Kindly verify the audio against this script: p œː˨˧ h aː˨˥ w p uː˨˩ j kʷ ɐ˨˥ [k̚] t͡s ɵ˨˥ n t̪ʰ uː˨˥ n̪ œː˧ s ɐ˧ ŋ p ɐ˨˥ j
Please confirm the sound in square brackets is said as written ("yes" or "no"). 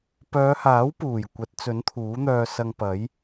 no